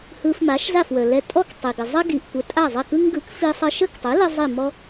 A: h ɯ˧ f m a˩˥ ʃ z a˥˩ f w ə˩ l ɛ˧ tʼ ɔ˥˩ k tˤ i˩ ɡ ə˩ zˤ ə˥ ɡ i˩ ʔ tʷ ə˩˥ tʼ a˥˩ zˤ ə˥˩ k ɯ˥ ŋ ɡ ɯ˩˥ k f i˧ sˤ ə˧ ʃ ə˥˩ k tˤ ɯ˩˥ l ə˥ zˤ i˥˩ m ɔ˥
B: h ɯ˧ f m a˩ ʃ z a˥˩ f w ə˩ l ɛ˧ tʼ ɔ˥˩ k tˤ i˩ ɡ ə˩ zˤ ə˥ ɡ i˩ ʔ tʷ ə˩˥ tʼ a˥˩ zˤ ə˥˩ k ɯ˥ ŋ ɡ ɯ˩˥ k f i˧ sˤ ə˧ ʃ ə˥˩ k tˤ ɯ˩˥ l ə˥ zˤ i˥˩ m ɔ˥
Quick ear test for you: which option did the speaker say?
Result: A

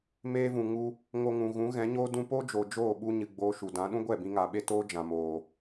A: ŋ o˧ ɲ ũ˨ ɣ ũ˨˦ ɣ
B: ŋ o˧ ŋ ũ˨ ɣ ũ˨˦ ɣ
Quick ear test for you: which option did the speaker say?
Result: B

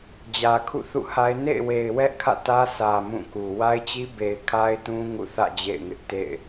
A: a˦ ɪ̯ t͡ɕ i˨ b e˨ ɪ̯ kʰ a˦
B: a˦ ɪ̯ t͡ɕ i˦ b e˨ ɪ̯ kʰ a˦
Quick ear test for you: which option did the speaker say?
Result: B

